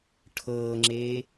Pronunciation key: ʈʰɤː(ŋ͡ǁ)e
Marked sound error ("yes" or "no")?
no